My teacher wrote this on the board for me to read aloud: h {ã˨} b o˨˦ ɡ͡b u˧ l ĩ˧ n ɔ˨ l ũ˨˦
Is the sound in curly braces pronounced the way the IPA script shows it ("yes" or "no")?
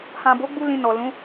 yes